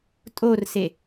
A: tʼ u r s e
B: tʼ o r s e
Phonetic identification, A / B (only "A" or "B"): B